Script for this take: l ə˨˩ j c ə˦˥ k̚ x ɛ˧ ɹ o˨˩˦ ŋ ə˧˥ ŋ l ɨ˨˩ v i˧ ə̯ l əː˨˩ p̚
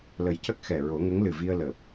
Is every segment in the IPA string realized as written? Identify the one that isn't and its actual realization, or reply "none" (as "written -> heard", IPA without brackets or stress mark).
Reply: ɛ˧ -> ɛ˨˩